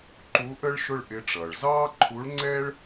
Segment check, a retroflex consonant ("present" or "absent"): present